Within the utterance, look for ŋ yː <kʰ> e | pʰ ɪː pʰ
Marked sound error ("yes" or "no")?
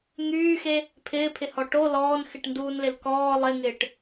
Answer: yes